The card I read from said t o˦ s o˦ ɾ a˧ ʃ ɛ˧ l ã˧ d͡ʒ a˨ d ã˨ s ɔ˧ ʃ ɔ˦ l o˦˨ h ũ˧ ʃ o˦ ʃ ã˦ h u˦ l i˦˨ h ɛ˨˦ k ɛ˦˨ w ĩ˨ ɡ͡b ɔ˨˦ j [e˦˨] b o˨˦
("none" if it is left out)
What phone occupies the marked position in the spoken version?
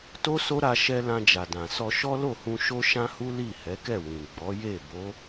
e˦˨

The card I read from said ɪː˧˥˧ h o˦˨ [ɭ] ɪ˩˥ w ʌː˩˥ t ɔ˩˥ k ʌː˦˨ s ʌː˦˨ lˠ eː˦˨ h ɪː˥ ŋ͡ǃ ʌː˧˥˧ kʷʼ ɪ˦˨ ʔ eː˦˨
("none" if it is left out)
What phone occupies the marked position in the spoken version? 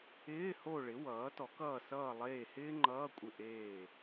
ɭ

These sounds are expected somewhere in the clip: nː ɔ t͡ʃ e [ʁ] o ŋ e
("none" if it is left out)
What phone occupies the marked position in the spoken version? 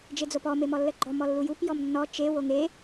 w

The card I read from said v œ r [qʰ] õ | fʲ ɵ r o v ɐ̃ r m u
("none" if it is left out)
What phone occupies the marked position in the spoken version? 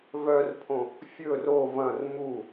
pʰ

